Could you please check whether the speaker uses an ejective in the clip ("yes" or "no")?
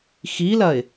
no